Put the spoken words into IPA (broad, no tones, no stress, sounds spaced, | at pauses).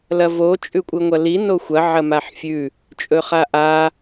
l ɐ v o t͡ʃʼ ʉ kʷʼ ɨ ŋʷ ɐ l i n o xʷ ɐ ʕ ɐ m a ħ fʲ ʉ | t͡ʃʼ ɵ χ a ʔ a